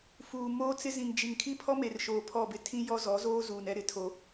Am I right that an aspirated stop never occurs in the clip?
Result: no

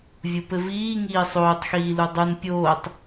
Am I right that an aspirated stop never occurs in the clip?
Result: yes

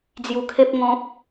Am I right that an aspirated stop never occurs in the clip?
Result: no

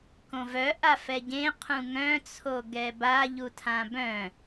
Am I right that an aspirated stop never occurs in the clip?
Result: no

